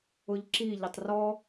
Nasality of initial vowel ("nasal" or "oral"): oral